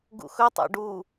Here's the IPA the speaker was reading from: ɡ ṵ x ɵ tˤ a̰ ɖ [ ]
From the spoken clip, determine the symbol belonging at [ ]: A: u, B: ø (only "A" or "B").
A